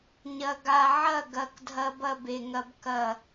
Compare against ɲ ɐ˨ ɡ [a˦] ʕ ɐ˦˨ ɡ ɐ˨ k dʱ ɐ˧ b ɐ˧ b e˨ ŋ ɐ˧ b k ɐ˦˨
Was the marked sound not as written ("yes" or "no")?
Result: yes